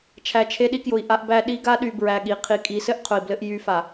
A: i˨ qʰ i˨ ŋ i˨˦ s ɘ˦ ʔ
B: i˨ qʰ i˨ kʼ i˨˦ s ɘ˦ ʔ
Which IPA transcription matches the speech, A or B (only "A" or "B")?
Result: B